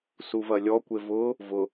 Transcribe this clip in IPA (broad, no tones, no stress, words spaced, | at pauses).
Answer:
suvɐlʲɔ kʷevʊ | vʊ